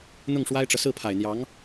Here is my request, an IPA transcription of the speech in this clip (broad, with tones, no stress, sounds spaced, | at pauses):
n̪ ʊ˥˩ ŋ ʂ w a˥ ɪ̯ ʈ͡ʂ ɤ˨ s ɹ̩˥˩ pʰ a˨˩ ɪ̯ n̪ j ɑ˧˥ ŋ